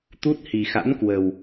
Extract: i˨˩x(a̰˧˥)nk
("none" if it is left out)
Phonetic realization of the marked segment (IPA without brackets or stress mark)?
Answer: a̰˧˥